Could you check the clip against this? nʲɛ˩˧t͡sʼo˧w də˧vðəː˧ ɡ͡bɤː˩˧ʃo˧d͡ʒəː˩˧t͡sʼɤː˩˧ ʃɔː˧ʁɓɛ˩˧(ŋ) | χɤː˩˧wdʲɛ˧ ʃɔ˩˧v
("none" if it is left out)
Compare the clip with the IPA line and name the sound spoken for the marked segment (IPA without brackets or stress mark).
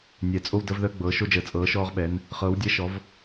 n